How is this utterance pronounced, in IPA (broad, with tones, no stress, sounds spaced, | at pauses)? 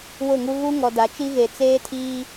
w ʊ˦˨ ŋ u˦ ɣ u˦ ŋ ɔ˨ d a˨˦ t͡ʃ i˦ ɣ e˨ t͡s eː˦ tʰ iː˦